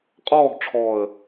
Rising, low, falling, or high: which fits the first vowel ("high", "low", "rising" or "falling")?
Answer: falling